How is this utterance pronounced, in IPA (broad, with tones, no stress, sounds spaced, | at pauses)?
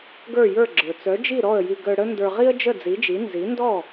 ɡ ə˞˥˩ j ə˞˥˩ ɡ͡ǁ ə˞˩ t͡s œ˩˥ d͡ʒ i˥˩ ɾ ɔ˥˩ ə̯ j i˧ ɡ œ˧ ɽ ə˥ n d ə˞˧ ʁ i˥ ə̯ d͡ʒ ə˥˩ d͡z i˩˥ d͡ʒ i˩˥ n z i˩˥ n d ɔ˥˩